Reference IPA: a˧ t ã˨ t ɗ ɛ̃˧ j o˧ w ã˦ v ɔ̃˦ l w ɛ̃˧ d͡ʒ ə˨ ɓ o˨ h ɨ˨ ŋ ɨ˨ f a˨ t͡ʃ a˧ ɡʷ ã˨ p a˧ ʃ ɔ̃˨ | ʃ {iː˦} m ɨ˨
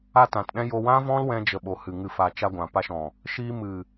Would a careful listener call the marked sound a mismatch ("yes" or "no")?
yes